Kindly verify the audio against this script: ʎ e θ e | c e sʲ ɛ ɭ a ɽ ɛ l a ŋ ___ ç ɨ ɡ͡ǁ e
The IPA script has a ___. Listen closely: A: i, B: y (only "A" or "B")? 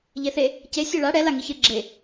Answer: A